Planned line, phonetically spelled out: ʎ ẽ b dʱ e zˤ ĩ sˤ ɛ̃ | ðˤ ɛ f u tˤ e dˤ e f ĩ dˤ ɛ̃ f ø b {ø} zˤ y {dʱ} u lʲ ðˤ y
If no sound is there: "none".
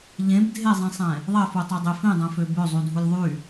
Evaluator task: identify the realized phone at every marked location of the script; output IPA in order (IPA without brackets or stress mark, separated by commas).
ø, dʱ